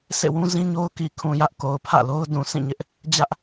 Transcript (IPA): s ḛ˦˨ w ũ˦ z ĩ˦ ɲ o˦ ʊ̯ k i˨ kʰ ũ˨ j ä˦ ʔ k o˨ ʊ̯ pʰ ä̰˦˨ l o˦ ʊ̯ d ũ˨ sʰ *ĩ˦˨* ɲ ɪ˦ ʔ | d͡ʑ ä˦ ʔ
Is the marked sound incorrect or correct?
correct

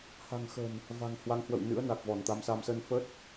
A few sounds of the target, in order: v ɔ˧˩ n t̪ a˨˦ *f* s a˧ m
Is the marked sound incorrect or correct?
incorrect: m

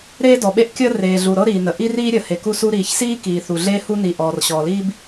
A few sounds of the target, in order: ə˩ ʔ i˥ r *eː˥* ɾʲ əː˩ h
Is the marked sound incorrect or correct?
incorrect: iː˥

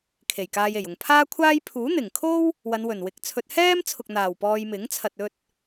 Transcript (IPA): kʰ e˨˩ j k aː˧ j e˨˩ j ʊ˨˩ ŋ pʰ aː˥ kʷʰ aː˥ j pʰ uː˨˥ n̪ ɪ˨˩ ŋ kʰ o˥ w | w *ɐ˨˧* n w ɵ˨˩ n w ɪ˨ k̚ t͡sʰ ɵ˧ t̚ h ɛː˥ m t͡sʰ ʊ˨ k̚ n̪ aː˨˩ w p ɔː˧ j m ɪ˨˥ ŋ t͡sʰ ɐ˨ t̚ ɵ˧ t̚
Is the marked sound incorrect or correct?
correct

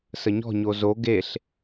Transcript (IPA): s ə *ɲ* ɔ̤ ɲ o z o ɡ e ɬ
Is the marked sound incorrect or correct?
correct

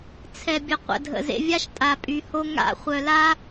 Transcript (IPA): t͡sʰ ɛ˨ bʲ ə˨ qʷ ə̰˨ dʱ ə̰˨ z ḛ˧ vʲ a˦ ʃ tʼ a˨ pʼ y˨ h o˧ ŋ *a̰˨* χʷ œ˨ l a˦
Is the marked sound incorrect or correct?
incorrect: a̰˦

